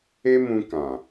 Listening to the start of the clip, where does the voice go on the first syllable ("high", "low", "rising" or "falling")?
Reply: high